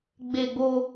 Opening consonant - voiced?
yes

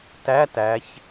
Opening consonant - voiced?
no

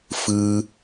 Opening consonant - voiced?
no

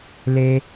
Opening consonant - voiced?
yes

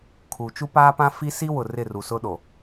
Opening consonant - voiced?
no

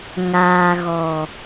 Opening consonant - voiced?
yes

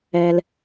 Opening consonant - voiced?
yes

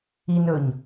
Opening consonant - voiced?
yes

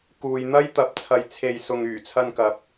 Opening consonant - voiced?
no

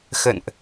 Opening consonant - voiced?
no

